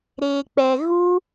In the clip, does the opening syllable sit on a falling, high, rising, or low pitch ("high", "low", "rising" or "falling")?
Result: low